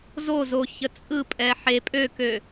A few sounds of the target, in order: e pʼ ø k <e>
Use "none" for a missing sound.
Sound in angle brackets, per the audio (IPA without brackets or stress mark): ø